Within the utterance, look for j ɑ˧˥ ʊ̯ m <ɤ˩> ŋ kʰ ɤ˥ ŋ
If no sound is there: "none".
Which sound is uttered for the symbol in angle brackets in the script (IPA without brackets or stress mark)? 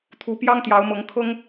ɤ˧˥